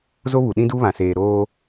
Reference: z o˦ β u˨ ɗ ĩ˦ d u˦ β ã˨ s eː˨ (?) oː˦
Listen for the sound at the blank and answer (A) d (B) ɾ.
B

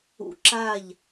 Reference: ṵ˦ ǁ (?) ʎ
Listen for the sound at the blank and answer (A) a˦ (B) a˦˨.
B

